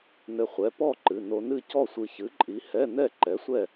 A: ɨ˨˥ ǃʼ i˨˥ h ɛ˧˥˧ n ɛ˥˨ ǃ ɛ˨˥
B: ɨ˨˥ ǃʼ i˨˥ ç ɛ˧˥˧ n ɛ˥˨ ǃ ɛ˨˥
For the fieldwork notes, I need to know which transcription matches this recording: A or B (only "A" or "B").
A